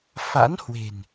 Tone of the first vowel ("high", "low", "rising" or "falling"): rising